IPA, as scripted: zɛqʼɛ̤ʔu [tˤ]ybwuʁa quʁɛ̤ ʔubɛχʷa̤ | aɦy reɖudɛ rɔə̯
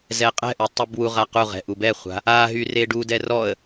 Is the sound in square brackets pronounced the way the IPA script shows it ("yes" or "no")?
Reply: yes